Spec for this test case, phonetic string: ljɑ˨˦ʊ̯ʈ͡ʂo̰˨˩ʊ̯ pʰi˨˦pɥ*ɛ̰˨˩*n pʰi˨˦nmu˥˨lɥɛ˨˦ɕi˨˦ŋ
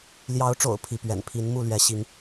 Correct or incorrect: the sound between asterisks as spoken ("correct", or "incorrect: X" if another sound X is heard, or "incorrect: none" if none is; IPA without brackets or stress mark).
correct